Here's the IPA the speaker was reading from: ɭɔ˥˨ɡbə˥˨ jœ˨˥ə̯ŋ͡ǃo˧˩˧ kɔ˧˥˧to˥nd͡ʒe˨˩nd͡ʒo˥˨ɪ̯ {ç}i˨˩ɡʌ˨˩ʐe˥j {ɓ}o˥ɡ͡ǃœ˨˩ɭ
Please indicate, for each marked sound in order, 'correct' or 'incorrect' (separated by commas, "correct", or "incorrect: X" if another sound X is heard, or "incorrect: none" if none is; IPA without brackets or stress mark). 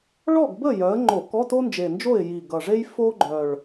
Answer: incorrect: j, incorrect: f